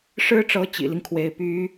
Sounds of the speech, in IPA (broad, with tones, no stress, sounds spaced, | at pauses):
ʂ ɻ̩˥ ʈ͡ʂ ɤ˧˥ t͡ɕ ḭ˨˩ l i˦ ŋ kʰ w e˧˥ ɪ̯ p y˧˥